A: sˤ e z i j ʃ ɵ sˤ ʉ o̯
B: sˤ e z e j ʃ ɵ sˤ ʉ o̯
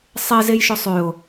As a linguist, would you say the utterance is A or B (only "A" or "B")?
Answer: B